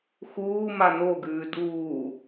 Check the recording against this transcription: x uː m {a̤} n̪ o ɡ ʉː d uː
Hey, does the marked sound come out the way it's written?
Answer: no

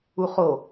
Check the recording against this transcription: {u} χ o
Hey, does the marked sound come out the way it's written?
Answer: yes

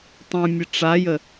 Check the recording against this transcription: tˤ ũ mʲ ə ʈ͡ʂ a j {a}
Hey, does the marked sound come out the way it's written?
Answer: no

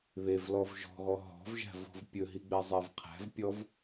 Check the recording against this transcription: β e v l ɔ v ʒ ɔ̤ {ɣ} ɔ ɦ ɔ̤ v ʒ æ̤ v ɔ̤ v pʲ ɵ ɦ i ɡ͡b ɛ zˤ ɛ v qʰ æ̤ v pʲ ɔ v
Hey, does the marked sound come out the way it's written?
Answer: yes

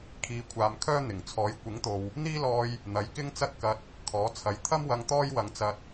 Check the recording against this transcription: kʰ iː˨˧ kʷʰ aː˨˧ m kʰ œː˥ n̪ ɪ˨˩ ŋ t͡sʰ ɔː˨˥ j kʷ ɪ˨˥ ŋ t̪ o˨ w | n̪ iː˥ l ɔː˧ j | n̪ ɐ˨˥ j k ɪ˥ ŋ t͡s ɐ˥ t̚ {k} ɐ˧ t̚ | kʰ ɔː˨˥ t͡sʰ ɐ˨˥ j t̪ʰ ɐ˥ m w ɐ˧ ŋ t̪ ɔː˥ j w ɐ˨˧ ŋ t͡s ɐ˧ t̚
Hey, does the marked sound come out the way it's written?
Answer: yes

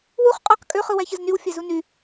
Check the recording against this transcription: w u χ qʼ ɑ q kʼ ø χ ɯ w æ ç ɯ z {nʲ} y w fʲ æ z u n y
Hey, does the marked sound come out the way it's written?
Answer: no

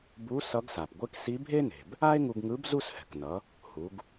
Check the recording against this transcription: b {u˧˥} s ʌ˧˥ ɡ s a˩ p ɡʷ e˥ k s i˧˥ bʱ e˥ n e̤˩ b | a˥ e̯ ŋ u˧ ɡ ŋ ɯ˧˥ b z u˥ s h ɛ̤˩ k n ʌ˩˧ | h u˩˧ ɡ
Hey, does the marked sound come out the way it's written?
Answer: yes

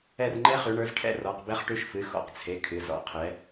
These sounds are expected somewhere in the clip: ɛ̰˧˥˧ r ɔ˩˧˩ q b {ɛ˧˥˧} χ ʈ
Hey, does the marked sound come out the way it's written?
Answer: no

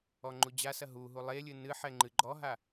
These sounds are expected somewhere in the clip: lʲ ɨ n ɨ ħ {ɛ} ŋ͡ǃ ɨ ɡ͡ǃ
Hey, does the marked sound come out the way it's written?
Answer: yes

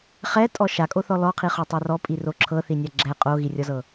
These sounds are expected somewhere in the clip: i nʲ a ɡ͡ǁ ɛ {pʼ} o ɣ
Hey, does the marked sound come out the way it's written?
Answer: no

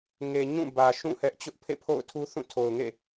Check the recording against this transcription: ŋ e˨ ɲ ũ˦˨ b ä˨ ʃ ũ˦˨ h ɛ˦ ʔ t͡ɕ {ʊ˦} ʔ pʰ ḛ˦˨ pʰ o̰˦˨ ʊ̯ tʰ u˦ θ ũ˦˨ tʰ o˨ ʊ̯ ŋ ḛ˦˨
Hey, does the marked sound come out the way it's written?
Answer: yes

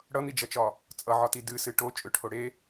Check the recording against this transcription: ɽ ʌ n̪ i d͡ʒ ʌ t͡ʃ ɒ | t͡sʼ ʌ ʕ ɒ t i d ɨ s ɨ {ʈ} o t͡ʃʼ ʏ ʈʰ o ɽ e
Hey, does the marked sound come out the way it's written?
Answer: yes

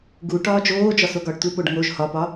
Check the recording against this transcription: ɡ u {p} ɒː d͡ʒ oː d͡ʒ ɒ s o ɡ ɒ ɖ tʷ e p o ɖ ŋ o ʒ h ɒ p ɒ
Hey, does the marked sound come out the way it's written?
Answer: no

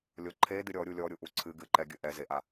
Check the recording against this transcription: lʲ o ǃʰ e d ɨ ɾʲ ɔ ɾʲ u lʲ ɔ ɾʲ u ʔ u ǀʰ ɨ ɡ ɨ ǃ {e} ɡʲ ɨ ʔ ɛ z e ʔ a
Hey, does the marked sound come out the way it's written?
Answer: no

